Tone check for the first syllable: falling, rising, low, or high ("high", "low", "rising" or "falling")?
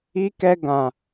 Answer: high